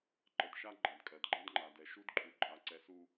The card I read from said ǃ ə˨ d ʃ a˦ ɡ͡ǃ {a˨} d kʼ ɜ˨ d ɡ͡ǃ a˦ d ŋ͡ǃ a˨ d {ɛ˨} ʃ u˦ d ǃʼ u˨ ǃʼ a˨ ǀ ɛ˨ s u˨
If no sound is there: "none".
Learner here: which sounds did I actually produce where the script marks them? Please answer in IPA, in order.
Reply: a˨, ɛ˨

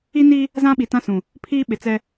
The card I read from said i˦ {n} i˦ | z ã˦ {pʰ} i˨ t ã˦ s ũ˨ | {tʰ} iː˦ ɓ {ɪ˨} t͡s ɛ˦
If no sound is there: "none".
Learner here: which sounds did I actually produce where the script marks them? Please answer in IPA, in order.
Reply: n, ɓ, pʰ, ɪ˨

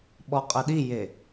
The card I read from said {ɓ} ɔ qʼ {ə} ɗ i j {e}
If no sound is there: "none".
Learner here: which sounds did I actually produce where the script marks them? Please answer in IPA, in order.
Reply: ɓ, ə, e

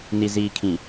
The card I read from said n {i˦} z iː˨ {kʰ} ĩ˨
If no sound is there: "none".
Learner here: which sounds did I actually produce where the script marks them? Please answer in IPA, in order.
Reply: i˨, kʰ

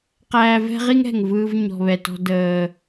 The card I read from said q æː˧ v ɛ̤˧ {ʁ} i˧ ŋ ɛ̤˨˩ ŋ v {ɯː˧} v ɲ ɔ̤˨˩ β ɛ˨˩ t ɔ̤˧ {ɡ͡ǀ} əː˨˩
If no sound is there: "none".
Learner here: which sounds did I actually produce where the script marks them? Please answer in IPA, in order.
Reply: ʁ, ɯː˧, d

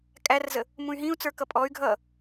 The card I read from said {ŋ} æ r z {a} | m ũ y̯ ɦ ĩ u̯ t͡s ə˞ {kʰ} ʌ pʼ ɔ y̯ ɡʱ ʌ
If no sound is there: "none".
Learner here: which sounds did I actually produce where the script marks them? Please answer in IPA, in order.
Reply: kʼ, ə, k

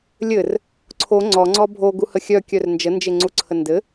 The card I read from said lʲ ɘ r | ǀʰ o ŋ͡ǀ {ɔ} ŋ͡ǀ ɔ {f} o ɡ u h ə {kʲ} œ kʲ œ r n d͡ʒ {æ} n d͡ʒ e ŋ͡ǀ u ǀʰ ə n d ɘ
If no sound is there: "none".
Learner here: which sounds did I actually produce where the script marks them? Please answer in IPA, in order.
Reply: ɔ, bʱ, xʲ, ə

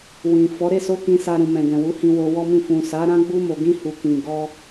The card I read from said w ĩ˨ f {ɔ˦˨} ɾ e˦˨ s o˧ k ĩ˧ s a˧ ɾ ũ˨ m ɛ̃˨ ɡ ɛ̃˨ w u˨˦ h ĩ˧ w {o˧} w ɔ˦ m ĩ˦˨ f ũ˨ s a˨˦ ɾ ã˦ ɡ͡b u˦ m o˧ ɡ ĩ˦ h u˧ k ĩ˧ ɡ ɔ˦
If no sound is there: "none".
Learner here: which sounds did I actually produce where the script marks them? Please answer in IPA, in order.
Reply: ɔ˨˦, o˧

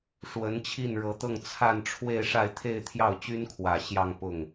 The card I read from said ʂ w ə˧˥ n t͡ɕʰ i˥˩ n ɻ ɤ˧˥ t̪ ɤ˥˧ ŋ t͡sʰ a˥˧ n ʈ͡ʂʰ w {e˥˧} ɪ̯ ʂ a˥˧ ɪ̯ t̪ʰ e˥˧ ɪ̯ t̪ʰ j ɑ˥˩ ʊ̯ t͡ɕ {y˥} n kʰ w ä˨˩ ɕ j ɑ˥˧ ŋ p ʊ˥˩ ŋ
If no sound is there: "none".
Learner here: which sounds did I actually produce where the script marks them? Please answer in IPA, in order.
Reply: e˥˧, y˥

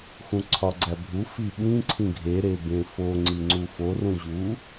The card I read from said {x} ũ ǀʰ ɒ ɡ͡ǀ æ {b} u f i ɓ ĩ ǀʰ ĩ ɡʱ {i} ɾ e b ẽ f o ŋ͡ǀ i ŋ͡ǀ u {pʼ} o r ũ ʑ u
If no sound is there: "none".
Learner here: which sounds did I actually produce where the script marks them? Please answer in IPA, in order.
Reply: x, bʱ, e, f

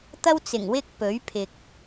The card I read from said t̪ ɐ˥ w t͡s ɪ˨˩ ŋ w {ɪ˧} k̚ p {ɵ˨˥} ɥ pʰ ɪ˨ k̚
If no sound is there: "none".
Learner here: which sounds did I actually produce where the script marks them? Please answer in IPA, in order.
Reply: ɪ˥, ɵ˨˥

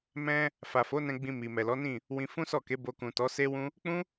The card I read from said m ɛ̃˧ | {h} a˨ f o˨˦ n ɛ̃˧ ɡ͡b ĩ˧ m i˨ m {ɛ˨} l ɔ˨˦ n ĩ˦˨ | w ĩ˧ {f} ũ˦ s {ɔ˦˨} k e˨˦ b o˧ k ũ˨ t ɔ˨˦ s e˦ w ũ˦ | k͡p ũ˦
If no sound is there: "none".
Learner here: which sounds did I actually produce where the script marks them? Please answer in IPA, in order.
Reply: f, ɛ˨, f, ɔ˦˨

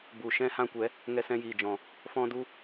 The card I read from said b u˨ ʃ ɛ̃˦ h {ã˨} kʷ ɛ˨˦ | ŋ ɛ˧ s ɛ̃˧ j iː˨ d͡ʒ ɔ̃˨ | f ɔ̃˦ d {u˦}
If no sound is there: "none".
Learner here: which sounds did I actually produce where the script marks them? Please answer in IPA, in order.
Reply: ã˦, u˦

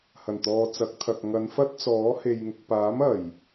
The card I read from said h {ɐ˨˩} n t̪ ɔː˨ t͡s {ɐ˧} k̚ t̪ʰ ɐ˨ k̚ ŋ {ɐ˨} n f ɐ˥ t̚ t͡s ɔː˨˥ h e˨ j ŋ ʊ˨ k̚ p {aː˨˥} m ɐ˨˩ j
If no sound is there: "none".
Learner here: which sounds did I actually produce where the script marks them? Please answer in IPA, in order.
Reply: ɐ˨˩, ɐ˨˥, ɐ˨˧, aː˨˥

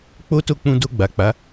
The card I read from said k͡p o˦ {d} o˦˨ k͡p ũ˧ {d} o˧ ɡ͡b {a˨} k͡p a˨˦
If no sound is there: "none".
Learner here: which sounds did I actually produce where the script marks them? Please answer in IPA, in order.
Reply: t, d, a˨

